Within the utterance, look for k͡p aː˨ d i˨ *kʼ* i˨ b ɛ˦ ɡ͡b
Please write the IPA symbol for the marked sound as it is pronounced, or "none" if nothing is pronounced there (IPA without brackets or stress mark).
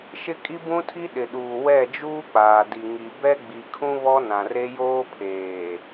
ŋ